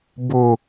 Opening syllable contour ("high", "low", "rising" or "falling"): low